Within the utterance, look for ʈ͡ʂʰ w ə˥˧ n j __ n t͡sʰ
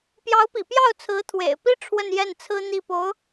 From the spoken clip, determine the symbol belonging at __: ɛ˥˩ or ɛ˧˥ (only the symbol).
ɛ˥˩